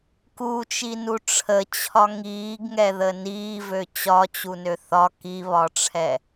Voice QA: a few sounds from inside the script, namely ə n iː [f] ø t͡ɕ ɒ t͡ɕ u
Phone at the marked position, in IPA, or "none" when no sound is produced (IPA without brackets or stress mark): v